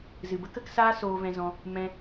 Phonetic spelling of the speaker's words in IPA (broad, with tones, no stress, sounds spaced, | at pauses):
z ɨ˨ b ə˦ k ə˦ k s aː˦ s oː˧ v ɛ̃˧ z ɔ̃˧ | m ɛ̃˧